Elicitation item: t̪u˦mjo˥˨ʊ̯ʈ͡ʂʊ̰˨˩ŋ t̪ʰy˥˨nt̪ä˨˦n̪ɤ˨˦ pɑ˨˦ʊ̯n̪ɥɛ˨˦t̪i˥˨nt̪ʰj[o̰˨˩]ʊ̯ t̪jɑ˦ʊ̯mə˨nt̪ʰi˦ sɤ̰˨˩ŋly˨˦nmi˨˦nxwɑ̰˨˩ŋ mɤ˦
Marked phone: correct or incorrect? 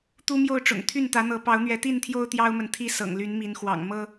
incorrect